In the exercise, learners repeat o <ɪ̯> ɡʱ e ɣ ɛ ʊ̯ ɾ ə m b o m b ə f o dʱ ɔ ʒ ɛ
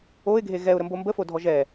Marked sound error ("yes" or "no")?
no